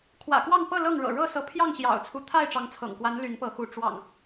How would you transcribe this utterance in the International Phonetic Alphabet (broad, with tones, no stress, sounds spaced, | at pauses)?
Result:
kʰ w ä̰˨˩ k w ɑ˥˨ ŋ p ɤ˥˨ l ɤ˥˨ ŋ ɻ ɤ̰˨˩ ɻ ɤ˥˨ s ɤ˨˦ pʰ j ɑ˥˨ ŋ ɕ j ɑ̰˨˩ ʊ̯ t͡sʰ u˦ t̪ʰ a˥˨ ɪ̯ ʈ͡ʂ ɑ˨˦ ŋ t͡sʰ ɤ̰˨˩ ŋ k w a˨˦ n l y˨˦ n p ɤ˨˦ x u˨˦ ʈ͡ʂ w ɑ̰˨˩ ŋ